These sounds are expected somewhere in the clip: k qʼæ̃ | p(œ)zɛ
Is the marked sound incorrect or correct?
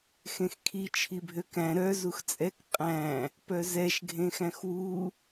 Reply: correct